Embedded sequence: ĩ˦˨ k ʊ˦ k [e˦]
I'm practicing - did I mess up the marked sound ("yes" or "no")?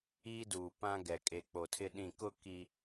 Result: yes